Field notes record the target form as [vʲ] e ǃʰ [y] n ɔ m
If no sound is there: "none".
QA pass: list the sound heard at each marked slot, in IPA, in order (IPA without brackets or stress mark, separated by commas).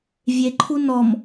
vʲ, u